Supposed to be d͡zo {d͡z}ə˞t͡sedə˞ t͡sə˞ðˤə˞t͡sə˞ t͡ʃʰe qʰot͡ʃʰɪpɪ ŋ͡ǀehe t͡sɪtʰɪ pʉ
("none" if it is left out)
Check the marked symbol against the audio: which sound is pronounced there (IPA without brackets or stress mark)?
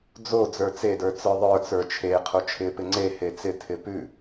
d͡z